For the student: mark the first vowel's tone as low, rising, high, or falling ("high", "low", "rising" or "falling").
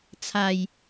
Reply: low